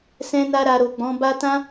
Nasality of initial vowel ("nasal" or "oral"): nasal